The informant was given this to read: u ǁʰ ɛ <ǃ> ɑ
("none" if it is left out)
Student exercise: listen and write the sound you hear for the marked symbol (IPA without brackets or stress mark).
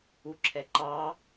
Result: ǃ